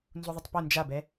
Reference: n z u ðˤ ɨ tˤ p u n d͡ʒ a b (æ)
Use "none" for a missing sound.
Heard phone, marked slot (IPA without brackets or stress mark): ɛ